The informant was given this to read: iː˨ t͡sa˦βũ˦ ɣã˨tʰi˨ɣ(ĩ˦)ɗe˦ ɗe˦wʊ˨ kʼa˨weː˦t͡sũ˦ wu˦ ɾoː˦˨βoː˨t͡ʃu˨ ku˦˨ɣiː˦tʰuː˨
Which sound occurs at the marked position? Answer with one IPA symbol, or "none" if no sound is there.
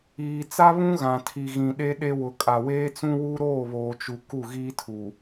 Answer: ĩ˨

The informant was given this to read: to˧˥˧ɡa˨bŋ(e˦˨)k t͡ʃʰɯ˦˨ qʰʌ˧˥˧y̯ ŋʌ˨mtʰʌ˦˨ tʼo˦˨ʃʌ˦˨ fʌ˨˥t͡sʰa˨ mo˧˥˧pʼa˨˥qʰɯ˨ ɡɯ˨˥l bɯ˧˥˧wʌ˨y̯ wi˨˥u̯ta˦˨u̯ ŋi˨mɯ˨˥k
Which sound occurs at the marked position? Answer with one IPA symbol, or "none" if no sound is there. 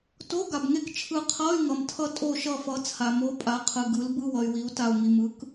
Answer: e˦˨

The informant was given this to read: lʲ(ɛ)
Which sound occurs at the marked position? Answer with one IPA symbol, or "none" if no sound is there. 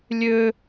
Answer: ø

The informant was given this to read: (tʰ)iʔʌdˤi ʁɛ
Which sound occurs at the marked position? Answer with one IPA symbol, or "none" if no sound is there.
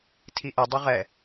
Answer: tʰ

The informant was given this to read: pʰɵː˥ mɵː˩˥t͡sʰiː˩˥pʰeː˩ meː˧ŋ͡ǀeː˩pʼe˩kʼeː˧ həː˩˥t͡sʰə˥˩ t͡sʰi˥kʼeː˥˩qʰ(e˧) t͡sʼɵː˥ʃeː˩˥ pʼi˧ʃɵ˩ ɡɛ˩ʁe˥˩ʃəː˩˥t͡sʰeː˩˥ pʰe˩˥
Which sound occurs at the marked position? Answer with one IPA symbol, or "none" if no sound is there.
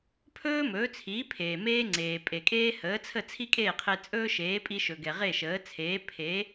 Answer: e˧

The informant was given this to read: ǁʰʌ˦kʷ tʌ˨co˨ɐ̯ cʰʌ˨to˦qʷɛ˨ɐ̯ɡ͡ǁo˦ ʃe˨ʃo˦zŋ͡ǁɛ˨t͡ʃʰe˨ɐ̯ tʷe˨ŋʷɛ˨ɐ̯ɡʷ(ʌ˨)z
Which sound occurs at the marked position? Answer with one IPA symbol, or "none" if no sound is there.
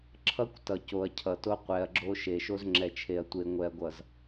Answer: ʌ˨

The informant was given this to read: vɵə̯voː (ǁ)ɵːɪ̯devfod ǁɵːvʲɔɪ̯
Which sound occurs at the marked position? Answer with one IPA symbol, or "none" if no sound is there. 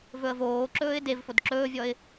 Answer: ǁ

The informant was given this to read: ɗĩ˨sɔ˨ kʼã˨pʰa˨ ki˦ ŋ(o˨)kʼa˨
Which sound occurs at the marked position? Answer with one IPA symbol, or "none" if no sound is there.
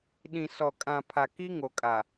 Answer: o˨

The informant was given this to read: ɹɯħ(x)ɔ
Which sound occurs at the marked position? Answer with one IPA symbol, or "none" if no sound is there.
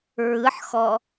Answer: x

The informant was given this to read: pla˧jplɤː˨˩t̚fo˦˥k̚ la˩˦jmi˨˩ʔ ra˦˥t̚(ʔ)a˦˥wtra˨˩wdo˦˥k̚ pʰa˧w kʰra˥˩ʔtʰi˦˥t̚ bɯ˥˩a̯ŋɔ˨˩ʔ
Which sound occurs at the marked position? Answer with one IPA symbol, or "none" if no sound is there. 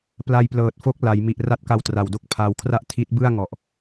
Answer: k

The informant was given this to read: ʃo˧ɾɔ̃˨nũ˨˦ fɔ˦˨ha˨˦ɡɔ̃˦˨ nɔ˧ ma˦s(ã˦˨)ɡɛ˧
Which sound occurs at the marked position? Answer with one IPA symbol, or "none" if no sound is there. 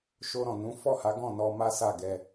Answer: a˦˨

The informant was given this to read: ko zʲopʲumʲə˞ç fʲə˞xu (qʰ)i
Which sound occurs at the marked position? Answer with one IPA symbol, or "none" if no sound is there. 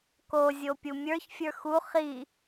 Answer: χ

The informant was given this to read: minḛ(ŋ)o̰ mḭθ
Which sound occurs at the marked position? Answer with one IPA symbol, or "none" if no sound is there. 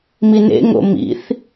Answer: ŋ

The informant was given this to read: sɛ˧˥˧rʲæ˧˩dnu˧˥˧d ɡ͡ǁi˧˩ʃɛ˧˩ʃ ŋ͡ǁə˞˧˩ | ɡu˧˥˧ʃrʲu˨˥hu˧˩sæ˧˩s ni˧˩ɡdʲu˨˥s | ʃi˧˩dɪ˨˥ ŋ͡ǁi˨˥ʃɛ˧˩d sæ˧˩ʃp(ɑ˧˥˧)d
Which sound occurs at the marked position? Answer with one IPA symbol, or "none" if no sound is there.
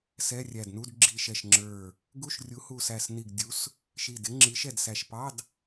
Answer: ɑ˧˥˧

